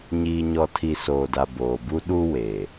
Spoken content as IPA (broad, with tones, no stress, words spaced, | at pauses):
ɲiː˨ɲɔ˨tʰi˨ soː˨da˨ boː˨bu˦ ɗu˦ we˨